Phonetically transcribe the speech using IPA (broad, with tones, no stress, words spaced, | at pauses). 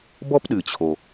bɔ˥pɗɨ˩t͡ɕʰo˩